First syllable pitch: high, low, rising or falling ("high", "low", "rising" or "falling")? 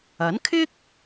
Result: rising